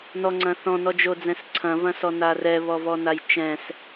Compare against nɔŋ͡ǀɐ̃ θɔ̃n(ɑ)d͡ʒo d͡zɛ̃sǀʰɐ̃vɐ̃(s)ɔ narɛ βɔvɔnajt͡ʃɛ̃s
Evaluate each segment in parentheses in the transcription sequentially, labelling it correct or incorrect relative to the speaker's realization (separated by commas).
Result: incorrect, correct